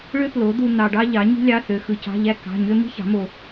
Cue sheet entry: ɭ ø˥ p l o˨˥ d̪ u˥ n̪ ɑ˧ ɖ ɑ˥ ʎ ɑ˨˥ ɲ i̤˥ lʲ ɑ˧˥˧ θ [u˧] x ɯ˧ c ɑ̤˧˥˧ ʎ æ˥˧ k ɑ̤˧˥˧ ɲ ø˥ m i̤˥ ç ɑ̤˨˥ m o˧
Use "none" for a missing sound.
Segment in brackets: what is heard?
ø˧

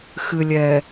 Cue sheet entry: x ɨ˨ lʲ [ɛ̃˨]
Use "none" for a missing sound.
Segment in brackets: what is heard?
ɛ˨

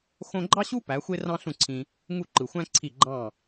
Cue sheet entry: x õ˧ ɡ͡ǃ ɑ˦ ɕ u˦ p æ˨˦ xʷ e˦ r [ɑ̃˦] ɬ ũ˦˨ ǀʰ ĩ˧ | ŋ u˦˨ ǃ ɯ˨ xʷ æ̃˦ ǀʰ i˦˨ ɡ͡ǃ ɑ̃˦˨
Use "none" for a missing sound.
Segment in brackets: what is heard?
ɑ̃˦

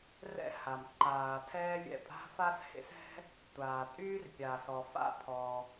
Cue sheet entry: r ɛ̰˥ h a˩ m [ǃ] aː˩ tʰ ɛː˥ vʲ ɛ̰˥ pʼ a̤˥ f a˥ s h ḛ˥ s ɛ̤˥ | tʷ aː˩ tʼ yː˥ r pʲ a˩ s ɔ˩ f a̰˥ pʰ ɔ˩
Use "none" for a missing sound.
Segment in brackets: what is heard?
ǃ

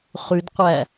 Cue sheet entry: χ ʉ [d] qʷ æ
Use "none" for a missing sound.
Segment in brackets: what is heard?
d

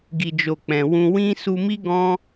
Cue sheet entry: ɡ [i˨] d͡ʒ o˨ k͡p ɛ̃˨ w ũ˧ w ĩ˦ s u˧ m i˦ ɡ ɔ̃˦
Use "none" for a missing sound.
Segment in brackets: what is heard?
i˨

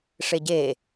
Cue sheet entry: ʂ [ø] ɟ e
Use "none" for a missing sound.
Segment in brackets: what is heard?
e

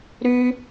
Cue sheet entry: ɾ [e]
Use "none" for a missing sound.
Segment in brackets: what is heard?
y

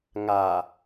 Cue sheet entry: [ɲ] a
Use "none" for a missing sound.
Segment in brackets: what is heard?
ŋ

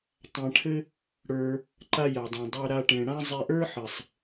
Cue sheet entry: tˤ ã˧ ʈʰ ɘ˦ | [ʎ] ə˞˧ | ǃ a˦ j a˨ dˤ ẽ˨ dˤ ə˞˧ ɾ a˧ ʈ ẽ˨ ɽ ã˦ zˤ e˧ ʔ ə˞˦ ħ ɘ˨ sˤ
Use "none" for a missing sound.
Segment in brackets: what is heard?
ɽ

